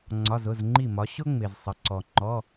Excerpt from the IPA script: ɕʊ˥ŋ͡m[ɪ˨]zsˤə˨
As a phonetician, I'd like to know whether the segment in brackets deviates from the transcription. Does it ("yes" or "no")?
no